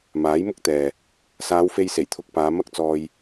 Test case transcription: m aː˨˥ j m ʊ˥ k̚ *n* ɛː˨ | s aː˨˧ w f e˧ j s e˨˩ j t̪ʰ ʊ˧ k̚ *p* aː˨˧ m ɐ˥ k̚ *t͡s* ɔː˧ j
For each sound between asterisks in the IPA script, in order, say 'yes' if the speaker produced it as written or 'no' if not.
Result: no, yes, yes

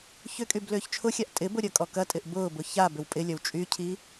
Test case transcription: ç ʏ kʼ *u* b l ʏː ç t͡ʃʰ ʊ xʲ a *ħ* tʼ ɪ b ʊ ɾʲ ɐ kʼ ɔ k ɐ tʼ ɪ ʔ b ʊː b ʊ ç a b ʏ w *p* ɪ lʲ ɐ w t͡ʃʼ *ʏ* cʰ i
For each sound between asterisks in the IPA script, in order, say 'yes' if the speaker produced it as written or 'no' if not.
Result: no, no, no, no

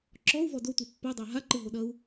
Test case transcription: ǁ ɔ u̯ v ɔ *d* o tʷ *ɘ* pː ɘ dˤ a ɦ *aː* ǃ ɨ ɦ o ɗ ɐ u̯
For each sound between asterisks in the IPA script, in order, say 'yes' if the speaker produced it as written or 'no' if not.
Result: yes, no, no

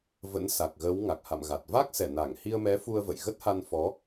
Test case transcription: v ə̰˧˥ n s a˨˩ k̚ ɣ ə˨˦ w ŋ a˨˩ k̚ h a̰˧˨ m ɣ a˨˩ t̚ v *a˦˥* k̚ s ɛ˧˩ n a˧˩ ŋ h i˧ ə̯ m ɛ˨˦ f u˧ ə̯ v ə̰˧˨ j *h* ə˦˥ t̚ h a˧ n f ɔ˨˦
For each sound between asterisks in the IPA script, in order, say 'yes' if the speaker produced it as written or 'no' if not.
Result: yes, no

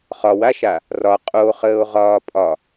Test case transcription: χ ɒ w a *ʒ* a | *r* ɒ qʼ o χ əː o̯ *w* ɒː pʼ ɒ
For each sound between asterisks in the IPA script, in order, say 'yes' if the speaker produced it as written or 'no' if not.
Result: no, yes, no

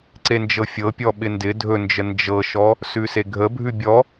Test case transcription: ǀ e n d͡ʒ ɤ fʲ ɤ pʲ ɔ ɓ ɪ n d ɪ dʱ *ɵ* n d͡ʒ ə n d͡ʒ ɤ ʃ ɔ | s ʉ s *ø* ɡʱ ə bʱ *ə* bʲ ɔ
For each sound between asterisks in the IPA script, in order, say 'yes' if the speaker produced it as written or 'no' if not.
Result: yes, no, no

